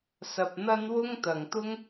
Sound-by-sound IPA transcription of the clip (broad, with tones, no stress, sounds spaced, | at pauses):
s ɐ˧ p̚ n̪ ɐ˥ n w ʊ˥ ŋ t̪ ɐ˨ ŋ t̪ ʊ˥ ŋ